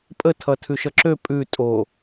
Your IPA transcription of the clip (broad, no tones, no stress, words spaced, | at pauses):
pʼətʰʌ tʰʉʃʌǁø pʼʉ tʼo